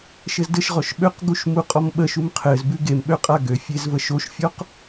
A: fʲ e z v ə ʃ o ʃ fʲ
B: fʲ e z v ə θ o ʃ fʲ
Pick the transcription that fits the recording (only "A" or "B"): A